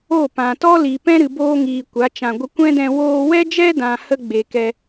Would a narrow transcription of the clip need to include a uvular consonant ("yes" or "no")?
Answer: no